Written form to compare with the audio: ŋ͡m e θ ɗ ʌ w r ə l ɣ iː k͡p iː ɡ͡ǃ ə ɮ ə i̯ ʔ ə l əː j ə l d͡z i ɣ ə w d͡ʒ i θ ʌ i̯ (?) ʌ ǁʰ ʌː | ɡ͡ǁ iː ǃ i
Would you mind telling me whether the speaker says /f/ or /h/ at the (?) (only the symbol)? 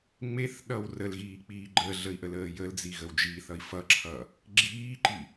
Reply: f